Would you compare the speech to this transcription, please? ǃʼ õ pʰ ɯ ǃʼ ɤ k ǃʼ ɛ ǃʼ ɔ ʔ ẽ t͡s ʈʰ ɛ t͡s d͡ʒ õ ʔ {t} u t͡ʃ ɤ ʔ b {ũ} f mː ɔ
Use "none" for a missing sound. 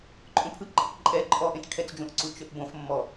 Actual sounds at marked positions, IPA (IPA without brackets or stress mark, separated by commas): ǀ, õ